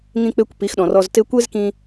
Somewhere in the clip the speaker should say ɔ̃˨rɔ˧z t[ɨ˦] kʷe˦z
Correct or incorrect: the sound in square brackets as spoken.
incorrect: e˦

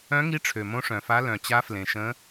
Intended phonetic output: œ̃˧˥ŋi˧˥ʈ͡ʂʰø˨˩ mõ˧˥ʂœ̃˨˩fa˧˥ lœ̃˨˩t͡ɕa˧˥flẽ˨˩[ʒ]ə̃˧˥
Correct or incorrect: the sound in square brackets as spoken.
incorrect: ʃ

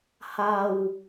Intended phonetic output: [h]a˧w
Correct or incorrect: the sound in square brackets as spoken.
correct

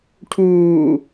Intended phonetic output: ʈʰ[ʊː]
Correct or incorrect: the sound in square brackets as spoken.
incorrect: uː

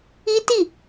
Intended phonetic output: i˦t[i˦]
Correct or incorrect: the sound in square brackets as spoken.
incorrect: i˦˨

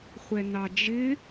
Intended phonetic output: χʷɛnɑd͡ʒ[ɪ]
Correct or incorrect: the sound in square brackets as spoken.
correct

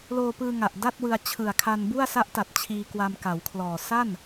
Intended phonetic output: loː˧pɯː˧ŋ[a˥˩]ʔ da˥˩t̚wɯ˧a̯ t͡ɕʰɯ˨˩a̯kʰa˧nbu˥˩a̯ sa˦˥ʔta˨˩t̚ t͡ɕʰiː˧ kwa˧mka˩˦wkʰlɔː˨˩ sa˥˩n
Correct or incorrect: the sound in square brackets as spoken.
incorrect: a˨˩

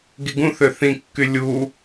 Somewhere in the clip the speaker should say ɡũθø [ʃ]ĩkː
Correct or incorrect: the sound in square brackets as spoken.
incorrect: θ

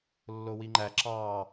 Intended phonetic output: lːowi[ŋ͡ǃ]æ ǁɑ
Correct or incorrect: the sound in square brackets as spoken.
correct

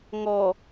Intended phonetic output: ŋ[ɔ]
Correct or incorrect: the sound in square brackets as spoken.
correct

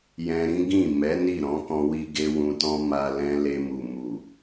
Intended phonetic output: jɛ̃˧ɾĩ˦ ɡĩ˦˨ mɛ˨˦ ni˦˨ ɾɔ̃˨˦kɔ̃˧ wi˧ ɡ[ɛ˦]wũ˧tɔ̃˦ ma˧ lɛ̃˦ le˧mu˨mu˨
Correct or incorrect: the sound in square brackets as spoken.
incorrect: e˦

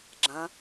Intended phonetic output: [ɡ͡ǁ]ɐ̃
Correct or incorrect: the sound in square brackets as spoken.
correct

